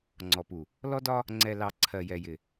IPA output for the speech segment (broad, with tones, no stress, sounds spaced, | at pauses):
ŋ͡ǀ ɔ˨ p u˨ | l ɔ˦ d ɒ˦ | ŋ͡ǀ ɛ˨ l ɑ˨ ǀʰ ɜ˨ j ɛ˨ j ɪ˨